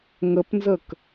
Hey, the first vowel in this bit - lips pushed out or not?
no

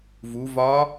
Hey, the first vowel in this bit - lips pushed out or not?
yes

